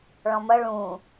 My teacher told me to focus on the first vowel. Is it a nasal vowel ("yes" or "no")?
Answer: yes